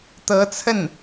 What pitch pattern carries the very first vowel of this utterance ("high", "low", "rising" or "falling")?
rising